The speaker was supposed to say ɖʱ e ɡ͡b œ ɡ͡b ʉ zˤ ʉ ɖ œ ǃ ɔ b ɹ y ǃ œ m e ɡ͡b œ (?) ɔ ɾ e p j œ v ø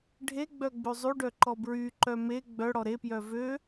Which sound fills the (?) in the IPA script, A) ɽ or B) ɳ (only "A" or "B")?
A